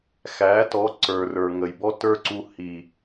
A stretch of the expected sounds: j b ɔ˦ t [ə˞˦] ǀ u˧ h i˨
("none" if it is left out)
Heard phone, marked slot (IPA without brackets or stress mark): ə˞˦